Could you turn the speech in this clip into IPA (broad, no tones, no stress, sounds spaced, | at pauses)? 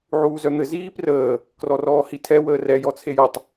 ʕ uː z œ n̪ ɘ z iː p r əː | k r ɔ r ɔː h i tʰ ɛ w əː r ɛ j ɔ t͡sʰ e j ɔ tˤ